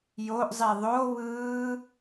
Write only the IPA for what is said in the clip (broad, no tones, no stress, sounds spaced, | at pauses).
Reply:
j o ʔ zˤ i ðˤ o β ɯː